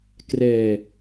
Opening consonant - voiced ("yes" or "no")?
no